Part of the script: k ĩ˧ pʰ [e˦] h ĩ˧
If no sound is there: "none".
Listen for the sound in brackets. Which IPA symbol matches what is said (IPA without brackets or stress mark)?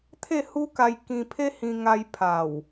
e˦